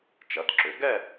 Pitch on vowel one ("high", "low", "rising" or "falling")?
rising